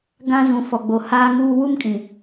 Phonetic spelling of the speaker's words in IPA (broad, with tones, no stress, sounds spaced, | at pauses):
ɡ ã˦ z ũ˨ f ɔ˨ ɡ͡b o˨ h aː˦ ŋ uː˦ w u˦ m kʼ ĩ˨